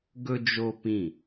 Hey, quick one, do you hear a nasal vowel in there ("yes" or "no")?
yes